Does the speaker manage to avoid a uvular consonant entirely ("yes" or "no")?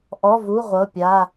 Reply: no